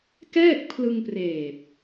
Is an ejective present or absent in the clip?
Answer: absent